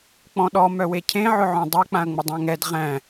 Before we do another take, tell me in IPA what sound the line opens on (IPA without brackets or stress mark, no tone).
k͡p